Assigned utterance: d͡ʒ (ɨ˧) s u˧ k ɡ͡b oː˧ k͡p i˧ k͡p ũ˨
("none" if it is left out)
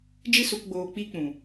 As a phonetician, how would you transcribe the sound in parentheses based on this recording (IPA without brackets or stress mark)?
ɨ˧